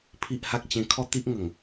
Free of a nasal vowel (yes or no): no